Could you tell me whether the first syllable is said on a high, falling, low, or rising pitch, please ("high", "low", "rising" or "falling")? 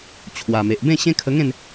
low